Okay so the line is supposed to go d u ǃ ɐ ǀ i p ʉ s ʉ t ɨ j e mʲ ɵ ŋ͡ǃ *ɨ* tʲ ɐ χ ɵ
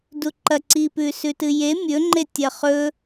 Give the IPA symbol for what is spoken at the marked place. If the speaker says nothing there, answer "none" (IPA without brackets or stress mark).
e